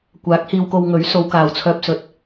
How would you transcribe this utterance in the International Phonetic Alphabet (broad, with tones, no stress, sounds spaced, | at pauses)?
kʷ aː˨˥ k̚ h iː˧ w k o˧ w ŋ ɵ˨˥ ɥ s o˨˧ w k aː˨ w t͡sʰ œː˧ p̚ s ɵ˨˥ t̚